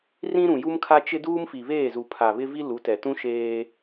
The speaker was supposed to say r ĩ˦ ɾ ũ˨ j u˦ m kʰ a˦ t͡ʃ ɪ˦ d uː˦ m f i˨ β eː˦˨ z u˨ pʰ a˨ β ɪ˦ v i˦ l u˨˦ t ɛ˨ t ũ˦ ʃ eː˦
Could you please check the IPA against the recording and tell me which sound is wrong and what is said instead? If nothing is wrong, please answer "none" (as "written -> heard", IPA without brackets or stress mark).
none